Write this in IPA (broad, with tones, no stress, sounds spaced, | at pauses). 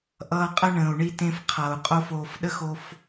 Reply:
ʔ ʌː˧ qʼ ə˦ ɳ ə̃ː˨ u̯ ɳ i˧ t ẽ˧ f qʰ ʌː˨ u̯ qʼ o˦ f oː˧ f ɗ ə˦ x o˧ f